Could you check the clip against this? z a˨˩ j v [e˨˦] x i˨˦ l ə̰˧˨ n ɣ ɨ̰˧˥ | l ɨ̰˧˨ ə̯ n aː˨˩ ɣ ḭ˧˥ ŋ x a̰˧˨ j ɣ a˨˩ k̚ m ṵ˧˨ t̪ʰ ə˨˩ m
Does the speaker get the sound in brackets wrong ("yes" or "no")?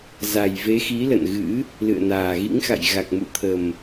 no